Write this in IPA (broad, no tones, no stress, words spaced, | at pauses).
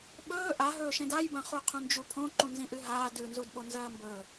ɓɵː ʔaɦɵːʃẽd ajbɐ̃χuqʰũ nd͡ʒupʰõ ǃũnzĩʔɨɦaː dʉnzudɓo nzɐːmbɵ